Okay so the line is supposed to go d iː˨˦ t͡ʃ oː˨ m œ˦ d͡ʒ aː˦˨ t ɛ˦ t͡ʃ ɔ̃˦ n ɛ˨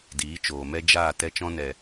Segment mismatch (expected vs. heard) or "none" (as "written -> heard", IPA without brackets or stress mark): œ˦ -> ɛ˦